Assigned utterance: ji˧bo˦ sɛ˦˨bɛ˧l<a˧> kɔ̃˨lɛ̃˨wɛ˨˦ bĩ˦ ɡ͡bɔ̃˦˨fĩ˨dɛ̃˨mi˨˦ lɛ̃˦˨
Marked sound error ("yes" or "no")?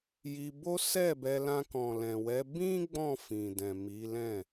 yes